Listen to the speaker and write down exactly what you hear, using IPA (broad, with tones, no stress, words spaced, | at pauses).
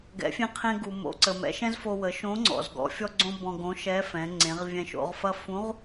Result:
ɡɛ̰˩˧fʲẽ˧ qʰẽ˧ɡu˩mo̰˩˧ǀə˩ mɛ̰˩˧ʃɛ̃˥zfo˧wə˩˧ ʃõ˧˥ŋ͡ǀɔ̰˩z ɡɔ̰˩˧ fʲɔ˧ɡ͡ǀõ˧ bɔ̃˧ɡõ˧˥ʃɛ˧˥fɛ̃˩˧ ŋ͡ǀẽ˩˧ʁvʲɛ̃˧ʃo̰˩˧ʁfɐ˥ fũ˧˥ʁ